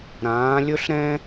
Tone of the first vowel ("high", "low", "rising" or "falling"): rising